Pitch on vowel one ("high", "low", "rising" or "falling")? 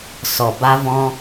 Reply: low